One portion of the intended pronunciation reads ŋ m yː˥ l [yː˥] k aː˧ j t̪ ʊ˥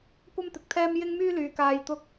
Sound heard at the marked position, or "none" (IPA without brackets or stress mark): yː˨